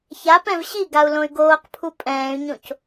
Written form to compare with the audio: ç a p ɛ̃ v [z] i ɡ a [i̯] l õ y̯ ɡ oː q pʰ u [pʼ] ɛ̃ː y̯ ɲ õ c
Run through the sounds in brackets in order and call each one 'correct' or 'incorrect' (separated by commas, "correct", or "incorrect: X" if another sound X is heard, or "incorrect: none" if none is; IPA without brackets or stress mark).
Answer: incorrect: ɕ, incorrect: u̯, correct